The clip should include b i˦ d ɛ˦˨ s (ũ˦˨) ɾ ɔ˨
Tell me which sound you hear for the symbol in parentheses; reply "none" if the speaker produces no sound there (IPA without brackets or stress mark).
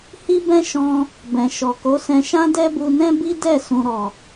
ũ˨